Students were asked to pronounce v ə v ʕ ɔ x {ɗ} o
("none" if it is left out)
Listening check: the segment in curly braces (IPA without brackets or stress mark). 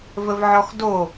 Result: d